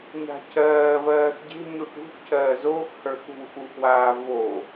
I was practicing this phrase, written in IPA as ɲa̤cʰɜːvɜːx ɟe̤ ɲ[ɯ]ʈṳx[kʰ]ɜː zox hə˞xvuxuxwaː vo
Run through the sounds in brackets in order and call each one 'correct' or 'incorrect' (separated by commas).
incorrect, incorrect